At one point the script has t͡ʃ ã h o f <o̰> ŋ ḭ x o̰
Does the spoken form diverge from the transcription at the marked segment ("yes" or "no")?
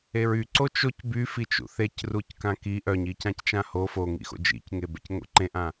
yes